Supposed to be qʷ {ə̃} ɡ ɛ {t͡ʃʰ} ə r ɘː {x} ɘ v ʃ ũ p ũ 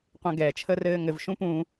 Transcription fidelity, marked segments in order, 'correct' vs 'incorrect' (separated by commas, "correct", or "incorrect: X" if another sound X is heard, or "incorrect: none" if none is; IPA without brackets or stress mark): correct, correct, incorrect: ŋ